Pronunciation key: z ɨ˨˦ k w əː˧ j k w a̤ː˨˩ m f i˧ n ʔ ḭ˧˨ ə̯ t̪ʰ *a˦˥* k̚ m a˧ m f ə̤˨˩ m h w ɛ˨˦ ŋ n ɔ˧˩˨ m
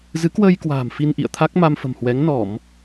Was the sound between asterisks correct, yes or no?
yes